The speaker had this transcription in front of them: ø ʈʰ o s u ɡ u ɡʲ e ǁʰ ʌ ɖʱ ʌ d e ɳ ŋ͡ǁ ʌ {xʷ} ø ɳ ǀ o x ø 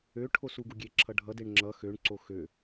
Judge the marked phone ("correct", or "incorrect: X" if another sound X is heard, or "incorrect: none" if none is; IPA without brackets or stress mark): incorrect: x